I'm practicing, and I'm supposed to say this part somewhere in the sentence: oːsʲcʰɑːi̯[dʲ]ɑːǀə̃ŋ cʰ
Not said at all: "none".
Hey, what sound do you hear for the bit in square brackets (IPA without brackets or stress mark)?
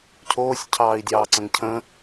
dʲ